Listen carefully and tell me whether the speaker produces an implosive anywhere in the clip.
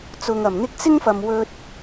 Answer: no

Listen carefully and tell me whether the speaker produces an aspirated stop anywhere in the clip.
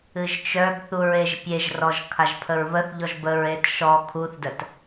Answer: yes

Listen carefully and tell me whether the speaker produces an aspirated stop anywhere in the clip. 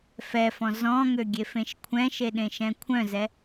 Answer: yes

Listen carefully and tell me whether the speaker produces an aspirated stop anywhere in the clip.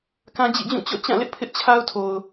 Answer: yes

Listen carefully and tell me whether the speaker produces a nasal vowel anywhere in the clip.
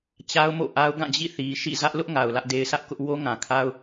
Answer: yes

